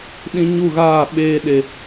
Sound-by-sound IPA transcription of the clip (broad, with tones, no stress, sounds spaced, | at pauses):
ɗ ĩ˧ ɲ u˦˨ ɣ aː˦˨ ɓ eː˧ ɗ e˨